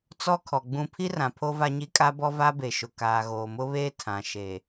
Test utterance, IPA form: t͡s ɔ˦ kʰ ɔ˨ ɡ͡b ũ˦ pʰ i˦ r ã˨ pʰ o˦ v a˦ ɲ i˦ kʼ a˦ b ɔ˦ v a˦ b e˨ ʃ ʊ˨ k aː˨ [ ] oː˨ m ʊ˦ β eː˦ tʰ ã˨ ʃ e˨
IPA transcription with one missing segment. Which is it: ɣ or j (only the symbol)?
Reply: ɣ